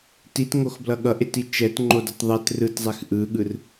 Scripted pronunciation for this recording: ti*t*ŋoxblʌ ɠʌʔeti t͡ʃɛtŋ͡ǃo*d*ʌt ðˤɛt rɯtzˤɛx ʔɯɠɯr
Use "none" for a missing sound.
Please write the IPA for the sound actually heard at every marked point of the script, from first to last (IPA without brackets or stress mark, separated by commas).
t, d